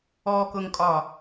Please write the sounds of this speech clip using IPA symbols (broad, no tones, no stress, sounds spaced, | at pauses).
ɔ k ʊ ŋ kʼ ɒ